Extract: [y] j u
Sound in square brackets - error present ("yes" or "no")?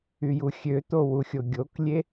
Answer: no